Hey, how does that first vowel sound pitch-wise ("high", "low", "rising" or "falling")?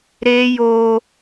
high